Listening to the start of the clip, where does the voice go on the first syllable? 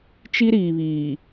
high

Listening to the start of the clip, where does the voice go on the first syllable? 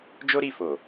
high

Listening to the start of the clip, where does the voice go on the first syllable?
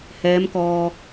rising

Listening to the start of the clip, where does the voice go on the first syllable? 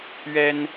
high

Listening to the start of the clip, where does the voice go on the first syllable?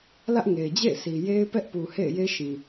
high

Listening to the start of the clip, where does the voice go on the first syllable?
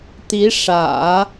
rising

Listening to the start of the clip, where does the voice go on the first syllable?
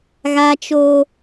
high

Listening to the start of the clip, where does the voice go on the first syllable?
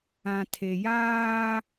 low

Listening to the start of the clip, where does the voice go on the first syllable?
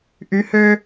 rising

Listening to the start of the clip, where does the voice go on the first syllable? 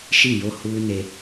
falling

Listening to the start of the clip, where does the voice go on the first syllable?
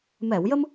low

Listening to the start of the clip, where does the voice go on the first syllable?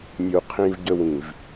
low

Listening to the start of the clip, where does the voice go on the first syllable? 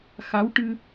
rising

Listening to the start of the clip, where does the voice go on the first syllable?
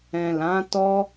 low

